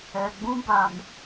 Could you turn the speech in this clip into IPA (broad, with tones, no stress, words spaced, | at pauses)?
ɛ˨ɡ͡bũ˦ ba˨m